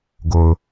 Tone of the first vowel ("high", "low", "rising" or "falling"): low